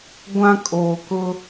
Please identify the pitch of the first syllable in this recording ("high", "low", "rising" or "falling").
high